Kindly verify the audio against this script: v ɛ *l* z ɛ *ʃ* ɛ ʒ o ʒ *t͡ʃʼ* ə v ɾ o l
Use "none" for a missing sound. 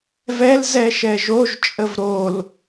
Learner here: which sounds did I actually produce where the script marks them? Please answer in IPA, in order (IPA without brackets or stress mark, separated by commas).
l, ʃ, t͡ʃʼ